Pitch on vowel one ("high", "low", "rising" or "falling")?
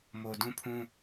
low